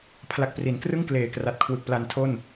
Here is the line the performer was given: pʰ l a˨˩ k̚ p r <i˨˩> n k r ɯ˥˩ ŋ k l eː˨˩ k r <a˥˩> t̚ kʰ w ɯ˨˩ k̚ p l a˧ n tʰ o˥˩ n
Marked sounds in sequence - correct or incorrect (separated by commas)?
incorrect, incorrect